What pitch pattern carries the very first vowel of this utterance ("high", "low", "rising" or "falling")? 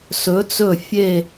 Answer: rising